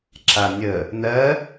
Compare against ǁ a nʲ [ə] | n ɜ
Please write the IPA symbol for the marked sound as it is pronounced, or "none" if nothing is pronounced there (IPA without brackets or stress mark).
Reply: ə